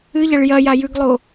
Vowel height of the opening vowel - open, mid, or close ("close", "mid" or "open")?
close